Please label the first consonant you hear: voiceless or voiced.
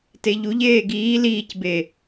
voiceless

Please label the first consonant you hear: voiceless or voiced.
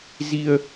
voiced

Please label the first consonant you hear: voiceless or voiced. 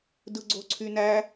voiced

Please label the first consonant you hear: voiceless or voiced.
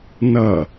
voiced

